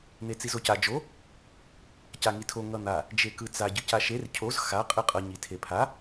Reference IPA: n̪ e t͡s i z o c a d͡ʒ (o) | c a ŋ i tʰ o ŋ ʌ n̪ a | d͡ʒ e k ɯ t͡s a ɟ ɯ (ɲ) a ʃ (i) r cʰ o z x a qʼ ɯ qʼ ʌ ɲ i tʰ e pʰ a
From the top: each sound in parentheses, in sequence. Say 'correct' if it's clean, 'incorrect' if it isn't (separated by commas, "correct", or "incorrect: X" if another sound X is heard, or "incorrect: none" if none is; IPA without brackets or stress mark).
correct, incorrect: c, incorrect: e